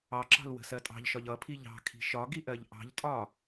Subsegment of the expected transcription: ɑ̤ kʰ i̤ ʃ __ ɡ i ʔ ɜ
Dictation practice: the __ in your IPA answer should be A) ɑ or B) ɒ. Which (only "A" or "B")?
B